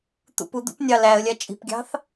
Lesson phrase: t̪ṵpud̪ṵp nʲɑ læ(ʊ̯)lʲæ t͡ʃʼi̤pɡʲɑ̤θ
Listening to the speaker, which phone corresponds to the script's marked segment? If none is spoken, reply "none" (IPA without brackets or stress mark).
ə̯